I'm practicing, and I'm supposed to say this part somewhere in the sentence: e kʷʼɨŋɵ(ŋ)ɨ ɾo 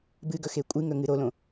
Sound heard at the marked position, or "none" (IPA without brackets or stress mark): ŋ